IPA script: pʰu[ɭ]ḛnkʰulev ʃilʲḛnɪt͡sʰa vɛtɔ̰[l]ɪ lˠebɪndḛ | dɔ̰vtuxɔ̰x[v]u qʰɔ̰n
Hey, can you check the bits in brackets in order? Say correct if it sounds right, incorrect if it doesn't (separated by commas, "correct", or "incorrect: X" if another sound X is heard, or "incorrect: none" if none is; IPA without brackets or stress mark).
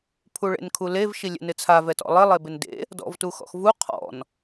correct, incorrect: lˠ, correct